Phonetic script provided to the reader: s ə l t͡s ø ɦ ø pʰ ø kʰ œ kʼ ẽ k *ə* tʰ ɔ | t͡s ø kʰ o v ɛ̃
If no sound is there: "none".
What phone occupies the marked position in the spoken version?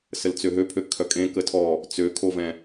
ə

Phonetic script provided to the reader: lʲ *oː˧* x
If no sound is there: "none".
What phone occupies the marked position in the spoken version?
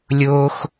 oː˧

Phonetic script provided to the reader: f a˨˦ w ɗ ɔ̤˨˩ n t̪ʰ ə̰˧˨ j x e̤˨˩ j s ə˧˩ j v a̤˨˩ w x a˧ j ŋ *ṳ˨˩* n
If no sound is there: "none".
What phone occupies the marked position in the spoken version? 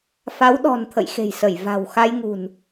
ṳ˨˩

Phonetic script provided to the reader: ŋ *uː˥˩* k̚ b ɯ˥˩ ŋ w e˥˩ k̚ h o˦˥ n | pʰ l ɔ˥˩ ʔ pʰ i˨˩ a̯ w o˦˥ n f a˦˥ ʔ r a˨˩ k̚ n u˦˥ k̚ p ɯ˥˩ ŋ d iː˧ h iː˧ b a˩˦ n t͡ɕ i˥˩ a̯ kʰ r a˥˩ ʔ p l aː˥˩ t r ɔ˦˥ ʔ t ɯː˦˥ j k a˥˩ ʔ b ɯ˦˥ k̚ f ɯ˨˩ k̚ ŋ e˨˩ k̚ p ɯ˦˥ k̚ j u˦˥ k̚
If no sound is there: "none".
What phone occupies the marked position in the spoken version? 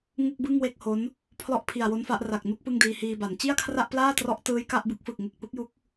u˥˩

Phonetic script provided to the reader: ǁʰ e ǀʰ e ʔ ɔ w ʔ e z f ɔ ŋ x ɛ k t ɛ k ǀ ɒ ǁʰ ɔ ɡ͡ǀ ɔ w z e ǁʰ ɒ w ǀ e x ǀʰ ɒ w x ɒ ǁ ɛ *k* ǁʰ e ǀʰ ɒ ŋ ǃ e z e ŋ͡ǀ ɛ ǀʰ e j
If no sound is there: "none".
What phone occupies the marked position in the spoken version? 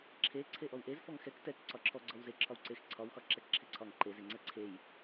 k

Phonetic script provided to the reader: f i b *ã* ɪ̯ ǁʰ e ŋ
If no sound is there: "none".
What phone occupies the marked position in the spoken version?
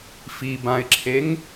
ã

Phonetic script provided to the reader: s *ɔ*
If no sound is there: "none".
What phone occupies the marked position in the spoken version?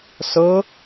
ɤ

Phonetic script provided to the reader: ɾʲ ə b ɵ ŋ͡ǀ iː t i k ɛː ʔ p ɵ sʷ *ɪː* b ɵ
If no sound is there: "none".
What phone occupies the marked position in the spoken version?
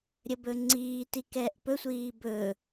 iː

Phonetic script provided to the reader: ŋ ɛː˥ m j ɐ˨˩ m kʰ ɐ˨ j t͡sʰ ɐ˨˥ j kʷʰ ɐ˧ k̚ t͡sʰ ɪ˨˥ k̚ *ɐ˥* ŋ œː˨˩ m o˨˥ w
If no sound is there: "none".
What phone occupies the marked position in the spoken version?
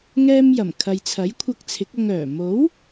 ɐ˧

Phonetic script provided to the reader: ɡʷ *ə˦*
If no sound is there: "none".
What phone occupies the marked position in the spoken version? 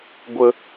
ə˦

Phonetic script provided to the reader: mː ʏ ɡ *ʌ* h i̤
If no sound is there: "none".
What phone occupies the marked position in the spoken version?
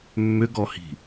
ɔ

